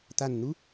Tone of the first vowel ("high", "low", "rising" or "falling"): falling